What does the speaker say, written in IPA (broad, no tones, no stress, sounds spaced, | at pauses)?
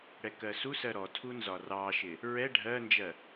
ɽ ɛ k ɜ s u s ɜ ɾ ɔ tʰ u n z ɒ r ɑ ʃ ɪ | ɹ ɛ ɖʱ ɜ n d͡ʒ ɜ